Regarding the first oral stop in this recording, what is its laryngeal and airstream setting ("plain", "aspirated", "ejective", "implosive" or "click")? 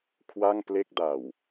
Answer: aspirated